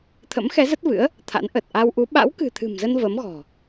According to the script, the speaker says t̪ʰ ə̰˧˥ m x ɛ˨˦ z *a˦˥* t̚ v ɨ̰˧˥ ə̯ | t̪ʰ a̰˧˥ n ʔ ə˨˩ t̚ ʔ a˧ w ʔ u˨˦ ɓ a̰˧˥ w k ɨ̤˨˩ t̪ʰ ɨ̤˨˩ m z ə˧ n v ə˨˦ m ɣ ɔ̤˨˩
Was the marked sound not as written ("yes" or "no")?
yes